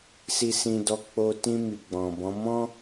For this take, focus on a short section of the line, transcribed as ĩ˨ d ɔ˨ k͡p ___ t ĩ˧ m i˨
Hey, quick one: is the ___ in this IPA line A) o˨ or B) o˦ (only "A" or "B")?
A